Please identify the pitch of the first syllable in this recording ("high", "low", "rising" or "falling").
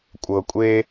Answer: low